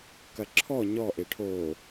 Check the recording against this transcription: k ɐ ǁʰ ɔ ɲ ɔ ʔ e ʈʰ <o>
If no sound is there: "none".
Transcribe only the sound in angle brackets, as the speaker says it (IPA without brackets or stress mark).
o